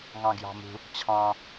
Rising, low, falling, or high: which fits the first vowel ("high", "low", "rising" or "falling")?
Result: low